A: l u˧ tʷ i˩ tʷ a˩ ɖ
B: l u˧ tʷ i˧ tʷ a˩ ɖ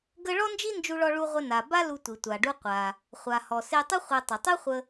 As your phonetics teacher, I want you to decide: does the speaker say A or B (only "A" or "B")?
A